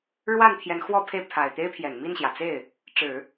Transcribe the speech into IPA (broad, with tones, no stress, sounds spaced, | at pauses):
ɻ w a˥˩ n t̪ʰ j ɛ˧˥ n x w ɔ˥˧ pʰ e˥˩ ɪ̯ pʰ a˨˩ ɪ̯ t̪ e˥ ɪ̯ pʰ j ɛ˨˩ n m i˥˩ n ɕ j ä˩ t͡s e˥˩ ɪ̯ | ʈ͡ʂ ɻ̩˨˩˦